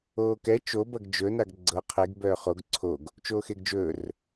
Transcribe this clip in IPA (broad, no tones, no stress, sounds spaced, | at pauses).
oː k ɛ t͡ʃ o b ɐ ɡ d͡ʒ ɵ n a ɡ ɡ͡ǀ ɤ qʰ e ɡ b œː χ o ɡ ǀʰ o ɡ | t͡ʃ oː x e ɡ d͡ʒ ɵː r